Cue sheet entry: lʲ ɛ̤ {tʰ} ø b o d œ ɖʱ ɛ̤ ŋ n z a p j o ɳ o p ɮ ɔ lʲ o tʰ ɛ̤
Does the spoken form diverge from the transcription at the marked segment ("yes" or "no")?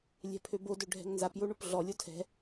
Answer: yes